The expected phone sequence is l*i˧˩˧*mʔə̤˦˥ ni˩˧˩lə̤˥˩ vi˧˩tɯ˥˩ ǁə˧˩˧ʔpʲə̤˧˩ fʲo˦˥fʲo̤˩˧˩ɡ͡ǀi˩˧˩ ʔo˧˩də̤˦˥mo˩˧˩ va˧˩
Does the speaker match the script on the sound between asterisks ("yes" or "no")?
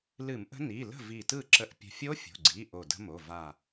no